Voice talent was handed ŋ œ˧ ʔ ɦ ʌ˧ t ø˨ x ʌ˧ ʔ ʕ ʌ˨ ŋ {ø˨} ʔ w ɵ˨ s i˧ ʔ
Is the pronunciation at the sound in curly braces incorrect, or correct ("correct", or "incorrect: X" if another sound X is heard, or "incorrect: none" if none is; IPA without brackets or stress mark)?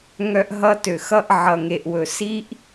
incorrect: e˨